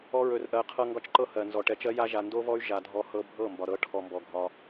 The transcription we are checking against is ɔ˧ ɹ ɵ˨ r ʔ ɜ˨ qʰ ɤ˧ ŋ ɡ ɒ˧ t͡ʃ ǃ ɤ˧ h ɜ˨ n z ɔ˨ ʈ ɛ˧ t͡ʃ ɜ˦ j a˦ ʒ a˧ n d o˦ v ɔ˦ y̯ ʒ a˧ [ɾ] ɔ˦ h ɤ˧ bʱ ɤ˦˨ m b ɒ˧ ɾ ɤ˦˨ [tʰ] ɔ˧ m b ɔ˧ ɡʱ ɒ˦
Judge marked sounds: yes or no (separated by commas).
no, no